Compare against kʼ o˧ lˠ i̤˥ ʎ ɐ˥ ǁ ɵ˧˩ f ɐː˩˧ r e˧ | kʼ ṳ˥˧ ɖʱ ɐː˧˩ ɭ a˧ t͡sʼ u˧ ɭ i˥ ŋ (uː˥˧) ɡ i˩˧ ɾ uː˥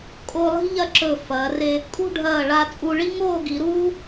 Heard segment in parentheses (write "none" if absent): oː˥˧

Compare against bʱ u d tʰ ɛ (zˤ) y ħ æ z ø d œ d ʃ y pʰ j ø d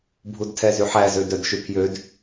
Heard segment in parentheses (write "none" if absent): z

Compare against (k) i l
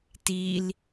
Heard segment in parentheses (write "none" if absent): t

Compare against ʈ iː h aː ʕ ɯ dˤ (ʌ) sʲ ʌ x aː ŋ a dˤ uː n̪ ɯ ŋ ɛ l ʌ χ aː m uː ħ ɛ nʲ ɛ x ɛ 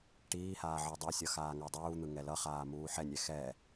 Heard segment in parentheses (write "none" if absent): ʌ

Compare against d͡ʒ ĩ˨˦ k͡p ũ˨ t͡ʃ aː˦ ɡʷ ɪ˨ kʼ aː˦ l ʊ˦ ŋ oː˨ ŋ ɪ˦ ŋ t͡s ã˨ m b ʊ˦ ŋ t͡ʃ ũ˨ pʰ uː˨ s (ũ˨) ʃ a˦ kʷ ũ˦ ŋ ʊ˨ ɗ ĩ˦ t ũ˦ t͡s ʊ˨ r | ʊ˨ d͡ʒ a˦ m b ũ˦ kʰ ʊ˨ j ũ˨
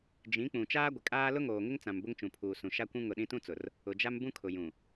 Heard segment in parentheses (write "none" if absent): ũ˨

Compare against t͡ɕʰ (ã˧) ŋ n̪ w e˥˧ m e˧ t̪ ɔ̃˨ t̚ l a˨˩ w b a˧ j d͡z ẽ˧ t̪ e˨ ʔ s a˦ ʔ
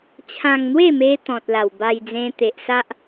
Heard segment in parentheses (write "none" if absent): ã˧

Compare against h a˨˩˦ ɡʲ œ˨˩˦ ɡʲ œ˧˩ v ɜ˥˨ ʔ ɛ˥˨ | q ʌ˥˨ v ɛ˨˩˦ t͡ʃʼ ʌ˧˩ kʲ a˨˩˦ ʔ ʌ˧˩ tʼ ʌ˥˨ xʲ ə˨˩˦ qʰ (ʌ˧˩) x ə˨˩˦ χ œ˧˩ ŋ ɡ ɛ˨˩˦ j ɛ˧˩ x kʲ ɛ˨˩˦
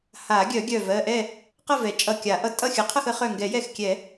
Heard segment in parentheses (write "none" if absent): ʌ˥˨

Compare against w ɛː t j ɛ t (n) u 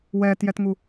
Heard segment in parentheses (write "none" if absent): ŋ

